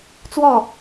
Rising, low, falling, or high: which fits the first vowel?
falling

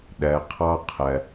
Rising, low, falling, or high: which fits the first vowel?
low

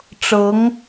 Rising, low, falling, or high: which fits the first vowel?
rising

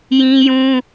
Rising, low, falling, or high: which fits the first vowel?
high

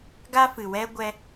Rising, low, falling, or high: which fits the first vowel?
high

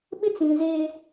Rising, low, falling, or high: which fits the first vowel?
high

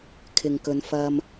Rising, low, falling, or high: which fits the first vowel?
low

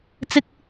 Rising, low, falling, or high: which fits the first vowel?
high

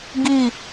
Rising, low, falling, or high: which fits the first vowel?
falling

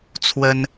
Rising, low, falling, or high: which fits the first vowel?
high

